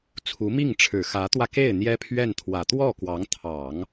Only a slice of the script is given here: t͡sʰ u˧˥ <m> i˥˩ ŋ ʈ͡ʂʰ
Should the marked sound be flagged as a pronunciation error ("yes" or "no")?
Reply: no